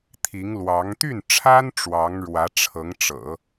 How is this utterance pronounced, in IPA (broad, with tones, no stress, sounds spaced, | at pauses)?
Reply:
t̪ʰ i˧˥ ŋ l w ɑ˧˥ ŋ t̪ y˥˩ n ʈ͡ʂʰ a˥ n ʈ͡ʂ w ɑ˧˥ ŋ ɻ w ä˧˥ ʈ͡ʂʰ ɤ˧˥ ŋ ʈ͡ʂ ɤ̰˨˩˦